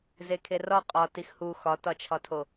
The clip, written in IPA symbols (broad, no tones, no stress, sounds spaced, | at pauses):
z e kʰ e r ɒ qʼ ɒ t i x h u x ɒ t ɒ t͡ʃʰ ɒ tʰ o